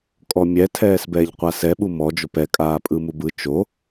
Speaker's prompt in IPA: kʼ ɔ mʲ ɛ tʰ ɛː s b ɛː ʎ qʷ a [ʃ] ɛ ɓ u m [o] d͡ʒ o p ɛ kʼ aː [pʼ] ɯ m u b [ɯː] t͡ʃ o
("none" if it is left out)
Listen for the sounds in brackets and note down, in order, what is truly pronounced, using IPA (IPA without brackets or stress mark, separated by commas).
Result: s, ɔ, pʼ, ɯ